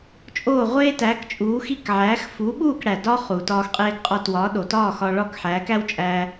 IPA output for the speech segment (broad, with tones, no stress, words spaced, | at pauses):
t͡ʃʼoː˥˩ʁʷeː˥tæː˩˥kt͡ʃʼuː˩˥ xi˥˩k ʕæː˩˥x fuː˩˥ɓuː˥˩k ɽæ˩dɒː˥ χu˩ tɒː˧xqʼeː˧ɡqʼɒ˧twɒː˩˥ ɗo˩tɒː˥˩ xɒ˧ɭɒ˥˩k ħæː˩˥kæ˥wt͡ʃʼæː˧